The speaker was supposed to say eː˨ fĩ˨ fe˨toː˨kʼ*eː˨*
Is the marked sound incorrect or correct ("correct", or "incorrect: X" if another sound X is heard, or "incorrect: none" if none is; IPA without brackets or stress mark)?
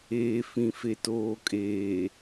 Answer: correct